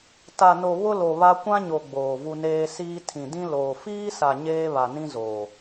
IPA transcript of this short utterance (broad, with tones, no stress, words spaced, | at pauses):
ta˨no˨ βʊ˦lo˨βa˦ kʷã˦ɲo˨ ɡ͡boː˨vu˦neː˦ siː˦ tʰĩ˨dĩ˦ loː˨ fiː˦sa˨ ɲeː˦βa˨nĩ˦zoː˨